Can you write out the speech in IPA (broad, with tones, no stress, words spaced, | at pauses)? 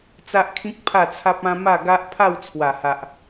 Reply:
t͡sa˦ʔkʰĩ˦k̚ pʰa˥˧t͡sʰa˦p̚ã˦ ma˥˧ɡa˦ʔ pʰa˥˧wt͡sʰwa˨˩ha˨ʔ